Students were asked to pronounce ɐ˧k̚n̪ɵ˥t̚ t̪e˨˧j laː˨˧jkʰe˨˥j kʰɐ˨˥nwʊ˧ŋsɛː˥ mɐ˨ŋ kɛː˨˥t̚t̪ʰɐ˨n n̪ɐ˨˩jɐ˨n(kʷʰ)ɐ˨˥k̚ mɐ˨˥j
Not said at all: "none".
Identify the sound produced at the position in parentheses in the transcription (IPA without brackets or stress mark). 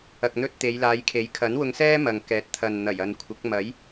kʷʰ